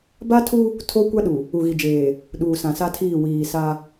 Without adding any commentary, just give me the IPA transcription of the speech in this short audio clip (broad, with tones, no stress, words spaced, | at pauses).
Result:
ba˦tʰu˦ | tʰo˦kʷa˦ɗu˨ | u˨ɣi˨d͡ʒeː˨ | ɗuː˨sã˨sa˦tʰiː˦˨ wiː˨sa˦